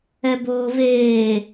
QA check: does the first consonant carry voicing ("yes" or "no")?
yes